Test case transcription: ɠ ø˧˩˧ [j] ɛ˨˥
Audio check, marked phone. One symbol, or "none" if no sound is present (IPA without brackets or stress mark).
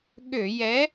j